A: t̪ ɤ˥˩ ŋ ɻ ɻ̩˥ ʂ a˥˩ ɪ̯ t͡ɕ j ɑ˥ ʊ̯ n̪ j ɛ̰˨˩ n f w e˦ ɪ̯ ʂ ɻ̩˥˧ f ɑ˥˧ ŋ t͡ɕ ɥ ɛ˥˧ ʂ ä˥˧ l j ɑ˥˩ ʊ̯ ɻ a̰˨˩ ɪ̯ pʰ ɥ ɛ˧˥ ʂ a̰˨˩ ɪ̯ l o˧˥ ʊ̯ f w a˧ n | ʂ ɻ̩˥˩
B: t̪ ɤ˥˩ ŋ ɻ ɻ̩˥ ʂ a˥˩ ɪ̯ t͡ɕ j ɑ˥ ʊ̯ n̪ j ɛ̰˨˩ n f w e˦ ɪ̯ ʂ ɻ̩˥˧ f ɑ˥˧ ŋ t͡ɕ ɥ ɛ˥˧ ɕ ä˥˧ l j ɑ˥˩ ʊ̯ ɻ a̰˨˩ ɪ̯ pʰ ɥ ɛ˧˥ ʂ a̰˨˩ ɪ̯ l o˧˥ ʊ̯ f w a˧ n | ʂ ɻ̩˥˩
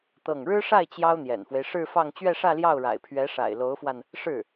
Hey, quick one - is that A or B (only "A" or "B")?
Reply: A